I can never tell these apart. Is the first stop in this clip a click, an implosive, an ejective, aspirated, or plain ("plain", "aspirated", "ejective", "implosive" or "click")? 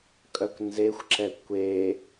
ejective